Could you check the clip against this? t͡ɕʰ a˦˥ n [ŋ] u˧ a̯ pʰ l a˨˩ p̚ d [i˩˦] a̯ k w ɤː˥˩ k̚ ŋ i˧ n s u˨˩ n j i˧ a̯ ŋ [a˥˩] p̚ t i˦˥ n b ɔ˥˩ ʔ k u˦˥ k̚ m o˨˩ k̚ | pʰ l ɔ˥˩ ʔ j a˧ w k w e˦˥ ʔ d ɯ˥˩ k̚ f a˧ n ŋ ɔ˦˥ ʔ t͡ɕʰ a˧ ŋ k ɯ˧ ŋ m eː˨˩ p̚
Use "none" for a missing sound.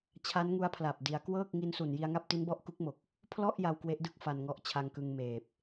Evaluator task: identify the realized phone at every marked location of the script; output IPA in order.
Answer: ŋ, i˩˦, a˥˩

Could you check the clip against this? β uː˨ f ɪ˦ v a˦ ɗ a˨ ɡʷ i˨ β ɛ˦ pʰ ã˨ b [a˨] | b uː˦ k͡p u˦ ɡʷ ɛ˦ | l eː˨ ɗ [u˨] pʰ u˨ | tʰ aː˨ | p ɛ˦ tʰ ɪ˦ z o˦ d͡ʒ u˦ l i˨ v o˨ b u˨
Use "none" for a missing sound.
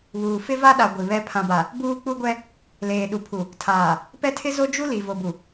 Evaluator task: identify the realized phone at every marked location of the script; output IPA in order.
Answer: a˨, u˨

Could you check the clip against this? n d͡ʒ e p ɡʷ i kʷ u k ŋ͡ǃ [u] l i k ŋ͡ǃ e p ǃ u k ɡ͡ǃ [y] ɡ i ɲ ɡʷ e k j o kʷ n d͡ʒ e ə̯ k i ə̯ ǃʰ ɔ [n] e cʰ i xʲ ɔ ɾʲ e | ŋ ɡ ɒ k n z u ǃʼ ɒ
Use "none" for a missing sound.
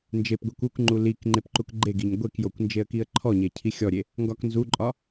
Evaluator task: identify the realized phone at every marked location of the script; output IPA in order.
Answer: u, e, ɲ

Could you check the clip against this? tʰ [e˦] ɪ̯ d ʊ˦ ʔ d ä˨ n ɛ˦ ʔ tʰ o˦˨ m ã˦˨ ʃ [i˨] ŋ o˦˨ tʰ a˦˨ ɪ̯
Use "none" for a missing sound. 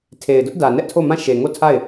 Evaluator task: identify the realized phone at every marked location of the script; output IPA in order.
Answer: e˨, e˨

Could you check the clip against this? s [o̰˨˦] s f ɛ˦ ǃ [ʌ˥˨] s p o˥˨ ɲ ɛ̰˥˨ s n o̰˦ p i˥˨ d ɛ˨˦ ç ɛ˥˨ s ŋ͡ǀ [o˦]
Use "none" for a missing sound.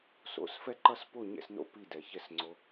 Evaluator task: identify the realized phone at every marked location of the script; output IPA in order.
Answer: o̰˨˦, ʌ˥˨, o˦

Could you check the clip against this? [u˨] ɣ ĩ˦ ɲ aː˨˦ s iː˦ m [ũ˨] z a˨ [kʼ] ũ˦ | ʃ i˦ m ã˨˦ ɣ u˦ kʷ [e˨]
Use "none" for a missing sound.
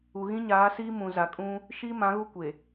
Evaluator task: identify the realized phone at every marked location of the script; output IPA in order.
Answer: u˨, ũ˨, kʼ, e˨

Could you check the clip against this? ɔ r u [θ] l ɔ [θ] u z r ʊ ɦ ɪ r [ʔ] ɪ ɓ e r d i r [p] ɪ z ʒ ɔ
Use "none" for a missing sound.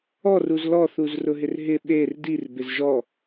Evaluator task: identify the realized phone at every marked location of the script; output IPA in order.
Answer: z, θ, ɦ, b

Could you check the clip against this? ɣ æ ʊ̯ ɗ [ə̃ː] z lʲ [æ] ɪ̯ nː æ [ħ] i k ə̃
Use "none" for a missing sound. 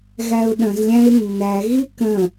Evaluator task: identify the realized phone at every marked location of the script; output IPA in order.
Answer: ə̃, æ̃, ɣ

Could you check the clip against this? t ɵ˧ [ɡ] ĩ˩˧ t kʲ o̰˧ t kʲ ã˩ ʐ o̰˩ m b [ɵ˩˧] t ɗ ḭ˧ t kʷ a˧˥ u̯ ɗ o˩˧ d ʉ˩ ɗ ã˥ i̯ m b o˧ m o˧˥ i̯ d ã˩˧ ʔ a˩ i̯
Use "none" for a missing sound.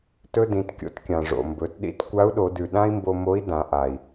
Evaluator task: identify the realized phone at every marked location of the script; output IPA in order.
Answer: d, ɵ˩˧

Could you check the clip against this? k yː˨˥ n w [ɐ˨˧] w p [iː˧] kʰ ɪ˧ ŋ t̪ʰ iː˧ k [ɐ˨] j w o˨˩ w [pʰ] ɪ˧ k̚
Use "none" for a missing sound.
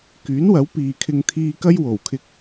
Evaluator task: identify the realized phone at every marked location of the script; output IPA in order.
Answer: ɐ˨˥, iː˨, ɐ˥, kʰ

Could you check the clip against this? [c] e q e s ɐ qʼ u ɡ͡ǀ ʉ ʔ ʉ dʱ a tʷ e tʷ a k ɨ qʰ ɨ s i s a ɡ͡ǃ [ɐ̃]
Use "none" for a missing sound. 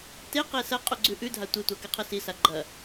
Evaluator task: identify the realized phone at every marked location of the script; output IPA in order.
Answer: t, ɐ

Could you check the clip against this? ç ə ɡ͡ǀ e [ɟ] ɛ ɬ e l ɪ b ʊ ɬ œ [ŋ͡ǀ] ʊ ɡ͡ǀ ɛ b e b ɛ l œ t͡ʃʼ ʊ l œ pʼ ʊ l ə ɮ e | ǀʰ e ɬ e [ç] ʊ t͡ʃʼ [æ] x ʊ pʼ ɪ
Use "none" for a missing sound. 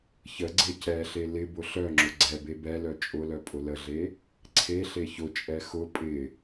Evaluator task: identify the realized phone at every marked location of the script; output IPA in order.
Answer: c, ŋ͡ǁ, ç, ɛ

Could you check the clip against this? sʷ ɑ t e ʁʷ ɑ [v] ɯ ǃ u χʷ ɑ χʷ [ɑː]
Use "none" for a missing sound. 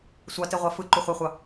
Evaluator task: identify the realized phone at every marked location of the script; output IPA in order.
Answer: f, ɑ

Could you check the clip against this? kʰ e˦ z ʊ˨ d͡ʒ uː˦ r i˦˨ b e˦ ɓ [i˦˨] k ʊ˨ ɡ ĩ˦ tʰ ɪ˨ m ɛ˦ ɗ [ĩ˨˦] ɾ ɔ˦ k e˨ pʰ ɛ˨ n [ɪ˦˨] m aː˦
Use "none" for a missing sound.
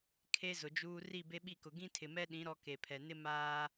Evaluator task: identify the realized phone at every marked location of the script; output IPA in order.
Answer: i˦˨, ĩ˨˦, ɪ˦

